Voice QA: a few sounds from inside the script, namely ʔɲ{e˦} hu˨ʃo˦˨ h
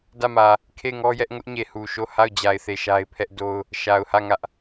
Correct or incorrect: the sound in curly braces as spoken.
incorrect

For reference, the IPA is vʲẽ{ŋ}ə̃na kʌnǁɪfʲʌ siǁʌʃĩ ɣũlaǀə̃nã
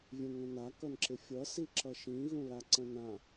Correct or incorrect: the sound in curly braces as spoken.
correct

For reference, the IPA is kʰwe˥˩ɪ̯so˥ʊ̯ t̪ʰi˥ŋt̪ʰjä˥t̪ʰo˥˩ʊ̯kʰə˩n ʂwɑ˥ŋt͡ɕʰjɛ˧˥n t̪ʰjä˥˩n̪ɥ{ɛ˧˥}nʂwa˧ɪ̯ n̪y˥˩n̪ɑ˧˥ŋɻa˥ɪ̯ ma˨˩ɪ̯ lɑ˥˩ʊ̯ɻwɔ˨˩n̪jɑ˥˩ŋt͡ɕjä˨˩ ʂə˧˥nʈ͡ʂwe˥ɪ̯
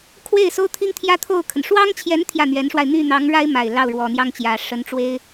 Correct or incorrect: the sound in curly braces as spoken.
correct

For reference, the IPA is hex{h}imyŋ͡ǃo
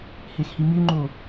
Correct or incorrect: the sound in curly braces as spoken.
correct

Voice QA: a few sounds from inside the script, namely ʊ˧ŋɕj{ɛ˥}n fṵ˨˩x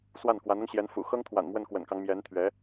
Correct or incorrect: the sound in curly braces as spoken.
incorrect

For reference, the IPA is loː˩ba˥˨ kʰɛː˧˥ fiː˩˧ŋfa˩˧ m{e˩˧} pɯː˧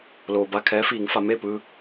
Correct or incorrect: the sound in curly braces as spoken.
incorrect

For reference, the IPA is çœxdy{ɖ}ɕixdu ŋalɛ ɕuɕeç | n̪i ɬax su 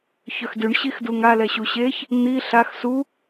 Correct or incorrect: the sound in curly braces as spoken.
incorrect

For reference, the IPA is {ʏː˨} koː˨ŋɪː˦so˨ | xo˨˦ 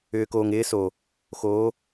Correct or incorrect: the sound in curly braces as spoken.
correct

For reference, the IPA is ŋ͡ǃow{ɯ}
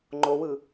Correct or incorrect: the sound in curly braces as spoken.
correct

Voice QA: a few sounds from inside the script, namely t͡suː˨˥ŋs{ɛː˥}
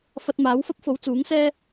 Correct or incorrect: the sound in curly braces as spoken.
correct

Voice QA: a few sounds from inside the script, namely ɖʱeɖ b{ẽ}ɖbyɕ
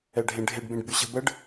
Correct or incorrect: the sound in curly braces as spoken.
correct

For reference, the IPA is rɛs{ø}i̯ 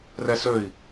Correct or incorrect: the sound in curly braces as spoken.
correct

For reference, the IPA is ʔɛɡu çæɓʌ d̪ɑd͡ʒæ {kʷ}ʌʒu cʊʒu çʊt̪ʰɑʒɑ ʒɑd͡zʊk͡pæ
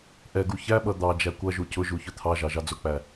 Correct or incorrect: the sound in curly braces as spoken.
correct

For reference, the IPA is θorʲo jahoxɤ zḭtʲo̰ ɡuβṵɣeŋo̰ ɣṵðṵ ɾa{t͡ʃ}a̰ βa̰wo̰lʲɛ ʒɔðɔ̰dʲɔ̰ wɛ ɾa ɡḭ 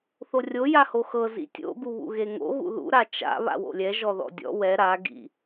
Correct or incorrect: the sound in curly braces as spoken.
correct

